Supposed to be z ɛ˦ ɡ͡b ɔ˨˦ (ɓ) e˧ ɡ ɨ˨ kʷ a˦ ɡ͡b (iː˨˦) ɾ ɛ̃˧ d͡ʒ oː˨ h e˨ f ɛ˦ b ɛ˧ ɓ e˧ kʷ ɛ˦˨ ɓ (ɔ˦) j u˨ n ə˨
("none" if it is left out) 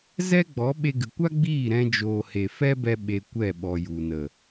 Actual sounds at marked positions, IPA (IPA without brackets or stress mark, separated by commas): ɓ, iː˦˨, ɔ˨